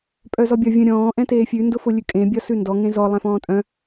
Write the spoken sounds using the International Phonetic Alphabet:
pʼ œ z ɔ bʲ ɒ vʲ ə̃ ɾʲ ɔ̃ː ʔ ɛ̃ t eː fʲ ʉ n d ʊ f ʊ lʲ ʉ kʼ ẽ bʲ ɒ s ʉ n d ɔ ŋ ẽ z ɔ lˠ ɛ̃ f ɔ̃ː tʼ œ̃

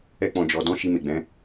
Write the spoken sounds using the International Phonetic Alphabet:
ɛ˦ k͡p ɔ̃˧ d͡ʒ ɔ˧ d ɔ̃˦ ʃ i˧ m e˨ ɡ͡b ɛ̃˨˦

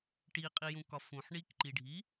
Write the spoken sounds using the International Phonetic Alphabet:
ʈ i qʼ i j ũ k ɒ f ũ ħ ɳ i k ǃ i ɖʱ i

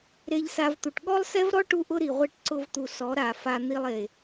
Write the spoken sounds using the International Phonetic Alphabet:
ɾ e˧ ʎ s a˧ v t̪ u˨ ʈ ɠ ɔ˦ lˠ s ɛ˦ v ɾ ɔ˦ ʈ u˦ ʔ ʊ˦ ɾ i˨ ʁʷ e˦˨ ʈ ǀ ʊ˧ v t̪ u˨ s ɔ˨˦ ɾ a˨ f a˧ n̪ i˧ lˠ e˨

